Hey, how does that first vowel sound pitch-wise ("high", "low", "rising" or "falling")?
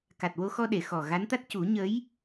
low